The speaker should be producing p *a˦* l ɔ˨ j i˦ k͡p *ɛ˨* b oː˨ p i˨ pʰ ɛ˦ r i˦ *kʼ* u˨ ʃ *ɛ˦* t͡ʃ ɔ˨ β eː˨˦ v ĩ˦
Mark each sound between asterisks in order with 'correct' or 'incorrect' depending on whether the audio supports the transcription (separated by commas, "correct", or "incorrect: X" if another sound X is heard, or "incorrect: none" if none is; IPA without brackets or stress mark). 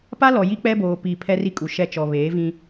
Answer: correct, incorrect: ɛ˦, correct, correct